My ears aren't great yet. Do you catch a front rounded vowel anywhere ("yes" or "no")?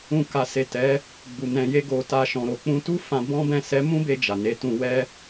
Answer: no